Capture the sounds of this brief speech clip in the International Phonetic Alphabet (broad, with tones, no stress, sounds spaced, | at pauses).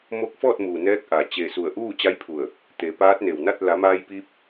m o˧˥ k̚ f ɔː˥˨ t̚ m uː˩ n ɛː˧˥ k̚ ʔ a˩ t͡ɕ e˧˩ s u˧˩ ə̯ ʔ uː˥˨ t͡ɕ a˧˥ j pʰ u˧˩ ə̯ | t̪ e˩˧ p aː˧˥ t̚ n e˩ w n a˥˨ t̚ l a˩˧ m aː˧ j p iː˧ p̚